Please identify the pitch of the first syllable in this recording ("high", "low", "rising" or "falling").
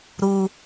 low